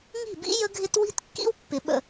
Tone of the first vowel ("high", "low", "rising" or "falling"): falling